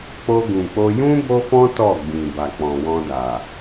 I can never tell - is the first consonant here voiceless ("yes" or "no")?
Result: yes